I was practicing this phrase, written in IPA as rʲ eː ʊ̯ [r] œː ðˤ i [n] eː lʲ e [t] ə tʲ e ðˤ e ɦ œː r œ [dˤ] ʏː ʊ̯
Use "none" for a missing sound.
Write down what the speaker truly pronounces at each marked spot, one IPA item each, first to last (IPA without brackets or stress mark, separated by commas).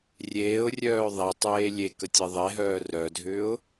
rʲ, tˤ, k, dʱ